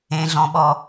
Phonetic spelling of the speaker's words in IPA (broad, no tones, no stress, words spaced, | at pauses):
ẽɮɔ̃ɓɔ